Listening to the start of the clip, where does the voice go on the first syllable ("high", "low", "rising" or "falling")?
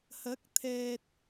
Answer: rising